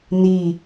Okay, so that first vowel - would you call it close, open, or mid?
close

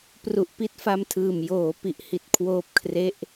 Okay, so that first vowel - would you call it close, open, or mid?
close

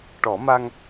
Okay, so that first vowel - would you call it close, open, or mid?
mid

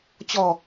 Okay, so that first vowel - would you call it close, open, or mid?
mid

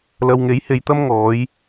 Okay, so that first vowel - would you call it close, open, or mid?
open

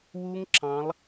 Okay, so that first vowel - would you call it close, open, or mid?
close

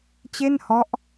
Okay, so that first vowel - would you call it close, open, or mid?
mid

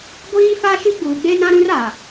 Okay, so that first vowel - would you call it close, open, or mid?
close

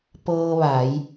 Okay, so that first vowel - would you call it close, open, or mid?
mid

